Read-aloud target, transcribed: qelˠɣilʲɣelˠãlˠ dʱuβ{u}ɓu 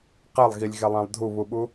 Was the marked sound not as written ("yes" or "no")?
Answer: no